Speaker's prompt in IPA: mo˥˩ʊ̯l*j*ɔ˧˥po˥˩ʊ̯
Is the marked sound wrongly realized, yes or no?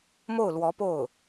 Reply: yes